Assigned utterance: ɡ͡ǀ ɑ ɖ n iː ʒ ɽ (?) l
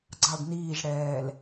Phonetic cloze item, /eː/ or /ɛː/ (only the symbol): ɛː